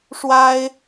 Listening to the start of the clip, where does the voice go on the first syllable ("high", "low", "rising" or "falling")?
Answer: high